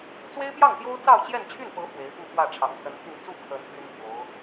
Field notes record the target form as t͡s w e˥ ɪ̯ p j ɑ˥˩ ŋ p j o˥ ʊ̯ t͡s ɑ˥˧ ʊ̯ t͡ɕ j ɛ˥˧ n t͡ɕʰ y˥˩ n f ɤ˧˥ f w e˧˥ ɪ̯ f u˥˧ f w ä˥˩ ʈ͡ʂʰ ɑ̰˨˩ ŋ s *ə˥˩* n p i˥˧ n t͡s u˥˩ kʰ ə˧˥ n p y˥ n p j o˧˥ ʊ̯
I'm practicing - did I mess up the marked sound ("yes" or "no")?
yes